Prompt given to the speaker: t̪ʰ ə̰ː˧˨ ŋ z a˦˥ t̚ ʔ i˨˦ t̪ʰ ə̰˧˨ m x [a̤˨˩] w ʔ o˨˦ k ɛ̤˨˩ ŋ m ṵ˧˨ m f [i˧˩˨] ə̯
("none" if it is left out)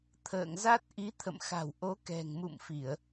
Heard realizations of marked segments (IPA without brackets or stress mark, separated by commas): a̤˨˩, i˧˩˨